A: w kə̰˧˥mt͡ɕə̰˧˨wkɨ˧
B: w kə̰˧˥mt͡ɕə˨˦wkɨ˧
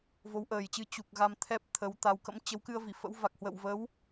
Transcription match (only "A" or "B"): B